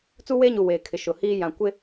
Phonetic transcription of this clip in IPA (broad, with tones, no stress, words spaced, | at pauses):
t͡su˦weː˦ɲu˨ weː˨kʰɪ˨ ʃʊ˨hiː˦ jã˨kʷɪ˦